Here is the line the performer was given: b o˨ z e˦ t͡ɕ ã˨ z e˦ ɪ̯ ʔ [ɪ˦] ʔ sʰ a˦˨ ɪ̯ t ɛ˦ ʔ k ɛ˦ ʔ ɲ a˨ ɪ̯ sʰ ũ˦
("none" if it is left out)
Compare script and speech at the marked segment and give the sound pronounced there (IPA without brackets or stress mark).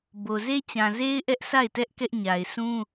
ɛ˦